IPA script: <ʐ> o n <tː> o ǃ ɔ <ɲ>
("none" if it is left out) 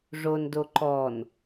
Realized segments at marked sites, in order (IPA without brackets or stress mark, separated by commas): ʐ, d, n